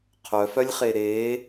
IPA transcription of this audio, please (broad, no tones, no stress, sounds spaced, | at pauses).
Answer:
qʰ œ f œ lʲ χ e ɾ eː